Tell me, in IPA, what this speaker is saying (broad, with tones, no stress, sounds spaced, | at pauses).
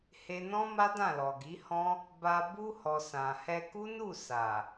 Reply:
h e˧ n ɔ̃˦ m a˦ d ã˦˨ l ɔ˨ ɡ i˨˦ h ɔ̃˦ | b a˧ b u˧ h ɔ˨ s ã˨ h ɛ˧ k u˦ n u˦˨ s a˨